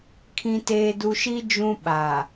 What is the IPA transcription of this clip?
kʰ ĩ˨ t eː˨ d u˨ ʃ i˦ d͡ʒ ũ˦ ɓ a˨

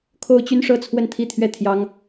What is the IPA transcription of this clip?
kʰ o˥ ʊ̯ t͡ɕ y˥ n ʂ ɤ˥˧ t͡sʰ w ə˥˧ n t̪ʰ i˥˧ t̪ʰ ɥ ɛ˥˩ t̪ʰ j ɑ˥ ŋ

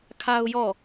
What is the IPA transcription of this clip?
kʰ a˦ ʊ̯ j ɔ˦˨

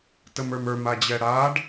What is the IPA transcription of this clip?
t ə m ə˞ m ə˞ m a d͡ʑ ɛ ɽ a ɖ

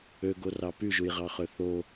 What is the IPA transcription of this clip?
ø ɡ o r ɑ p y ʒ u j ʁ ɑ χ ø θ o

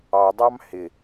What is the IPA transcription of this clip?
ɑ dˤ ɑ m h ɪ

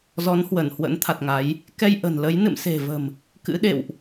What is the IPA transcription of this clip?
z ɔ˨˦ n h w ə˧˩ n h w ə̰˧˥ n t̪ʰ a˨˩ t̚ ŋ a˨˦ j | k ɛ˧ j ʔ ə̤˨˩ n l ə˨˦ j n ɨ̰˧˨ m s e̤˨˩ v ə̤˨˩ m | k ɨ̰˧˥ ɗ ḛ˧˨ w ʔ

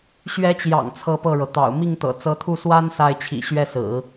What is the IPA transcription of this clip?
ɕ ɥ ɛ˧˥ t͡ɕ j ɑ̰˨˩ ŋ t͡sʰ ɤ˥˧ p ɤ˥˩ ɻ ɤ˩ t̪ ɑ̰˨˩ ʊ̯ m i˥˩ ŋ t̪ ɤ̰˨˩ t͡s ɤ˧˥ t̪ʰ u˥˩ s w a˥ n s a˥˩ ɪ̯ t͡ɕʰ ḭ˨˩ ɕ ɥ ɛ˥˩ s ɹ̩˨˩˦

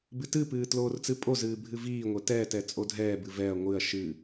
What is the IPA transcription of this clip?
b ɨ t ɨ p ɨː t l oː r t͡s ɨ pʼ o z ɨː bʱ ɨ v iː ŋʷ ɛ t ɛː t ɛ t͡sʼ o dʱ ɛː b ɨ v ɛ ɐ̯ ŋʷ ɨ ɐ̯ ʃ ɨ

